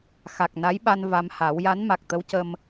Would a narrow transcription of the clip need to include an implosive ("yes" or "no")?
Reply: yes